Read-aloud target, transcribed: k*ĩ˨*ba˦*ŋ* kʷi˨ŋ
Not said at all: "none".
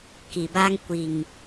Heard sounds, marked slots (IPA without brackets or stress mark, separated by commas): i˨, ŋ